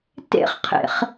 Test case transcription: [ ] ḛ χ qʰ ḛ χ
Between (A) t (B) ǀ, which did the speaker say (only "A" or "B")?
A